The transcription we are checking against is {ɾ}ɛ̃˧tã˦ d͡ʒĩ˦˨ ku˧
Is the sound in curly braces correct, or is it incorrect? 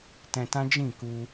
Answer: incorrect